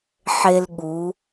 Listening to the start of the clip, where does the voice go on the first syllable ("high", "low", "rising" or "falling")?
high